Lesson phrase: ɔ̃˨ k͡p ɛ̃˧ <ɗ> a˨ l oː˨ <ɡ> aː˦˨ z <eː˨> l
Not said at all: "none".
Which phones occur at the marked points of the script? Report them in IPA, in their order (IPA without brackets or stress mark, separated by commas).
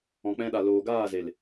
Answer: ɗ, ɡ, e˨